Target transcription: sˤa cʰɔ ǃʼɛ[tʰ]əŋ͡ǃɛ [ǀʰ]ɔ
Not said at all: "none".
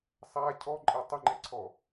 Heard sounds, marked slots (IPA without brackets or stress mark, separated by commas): tˤ, ǀʰ